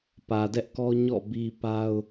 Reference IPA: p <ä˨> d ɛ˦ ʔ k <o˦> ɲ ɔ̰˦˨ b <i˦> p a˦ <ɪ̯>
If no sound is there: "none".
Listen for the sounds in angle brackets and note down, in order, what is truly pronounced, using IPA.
ä˨, ɔ˦, i˦, ʊ̯

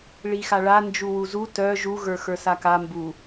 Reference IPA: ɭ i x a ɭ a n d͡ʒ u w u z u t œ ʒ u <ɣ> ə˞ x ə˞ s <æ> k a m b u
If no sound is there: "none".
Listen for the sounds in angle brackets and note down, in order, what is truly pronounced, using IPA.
ɣ, a

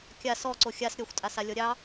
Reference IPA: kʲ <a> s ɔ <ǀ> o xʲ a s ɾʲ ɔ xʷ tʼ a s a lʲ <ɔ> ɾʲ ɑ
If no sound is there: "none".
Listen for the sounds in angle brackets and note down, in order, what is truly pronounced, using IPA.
a, ǀ, ɔ

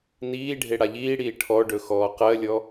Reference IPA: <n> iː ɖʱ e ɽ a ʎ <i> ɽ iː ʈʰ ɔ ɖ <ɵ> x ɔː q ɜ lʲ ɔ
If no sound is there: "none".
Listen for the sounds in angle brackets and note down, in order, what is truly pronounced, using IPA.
n, iː, ɵ

